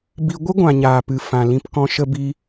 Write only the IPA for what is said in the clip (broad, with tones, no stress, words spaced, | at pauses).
bi˧ ɡʷɨ˦ɡʷã˨ ɲaː˨pɨ˨ fã˨lĩ˧pkɔ̃˧ ʃə˧bi˧